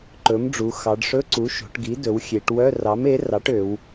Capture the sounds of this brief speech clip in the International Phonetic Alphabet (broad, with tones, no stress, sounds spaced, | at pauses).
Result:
ǃ ɵ˩˥ m ɖ͡ʐ u˩˧ x ɑ˩˧ ɖ ʂ ɵ˧˥˧ ǀ u˩˥ ʃ o̤˩˧ ʈ ɡ i˩˥ d ɵ˩˧ w xʲ e˩˧ ʈ w œ˧˥˧ r ɑ˩˥ m e˩˥ r ɑ˩˥ ʈ ø˩˧ w